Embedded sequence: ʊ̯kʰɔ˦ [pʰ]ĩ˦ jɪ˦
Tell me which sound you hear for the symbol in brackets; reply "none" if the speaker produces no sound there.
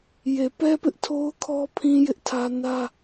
pʰ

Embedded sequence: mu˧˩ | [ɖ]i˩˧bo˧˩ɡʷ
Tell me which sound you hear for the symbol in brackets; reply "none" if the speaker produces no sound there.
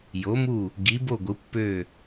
ɡ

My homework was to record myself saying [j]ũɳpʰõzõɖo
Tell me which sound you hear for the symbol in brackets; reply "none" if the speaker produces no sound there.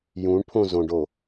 j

